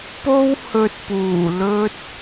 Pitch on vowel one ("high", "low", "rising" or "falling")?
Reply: high